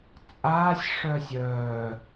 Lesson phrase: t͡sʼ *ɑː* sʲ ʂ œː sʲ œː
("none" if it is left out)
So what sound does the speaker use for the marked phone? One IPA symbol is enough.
aː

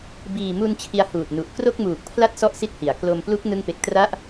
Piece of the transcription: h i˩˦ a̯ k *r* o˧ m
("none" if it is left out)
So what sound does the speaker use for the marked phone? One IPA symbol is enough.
l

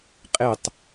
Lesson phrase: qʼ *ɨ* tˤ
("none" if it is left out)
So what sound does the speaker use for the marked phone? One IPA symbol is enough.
e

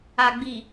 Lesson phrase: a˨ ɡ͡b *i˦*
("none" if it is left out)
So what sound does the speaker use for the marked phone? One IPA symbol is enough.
i˨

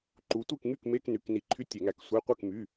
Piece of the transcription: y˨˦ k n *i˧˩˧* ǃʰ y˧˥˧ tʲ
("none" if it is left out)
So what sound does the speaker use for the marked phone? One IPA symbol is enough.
i˧˩˧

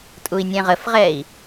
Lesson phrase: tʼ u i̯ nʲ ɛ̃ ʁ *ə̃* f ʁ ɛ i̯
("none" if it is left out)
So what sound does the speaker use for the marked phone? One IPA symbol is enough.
ə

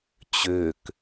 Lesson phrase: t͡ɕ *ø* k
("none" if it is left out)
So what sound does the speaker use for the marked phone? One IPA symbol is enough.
ø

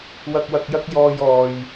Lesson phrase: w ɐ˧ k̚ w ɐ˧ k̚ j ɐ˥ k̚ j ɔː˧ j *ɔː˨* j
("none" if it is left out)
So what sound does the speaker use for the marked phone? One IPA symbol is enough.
ɔː˨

